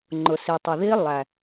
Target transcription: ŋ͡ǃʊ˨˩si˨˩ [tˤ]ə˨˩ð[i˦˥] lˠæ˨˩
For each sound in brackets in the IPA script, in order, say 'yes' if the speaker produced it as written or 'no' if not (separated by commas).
yes, yes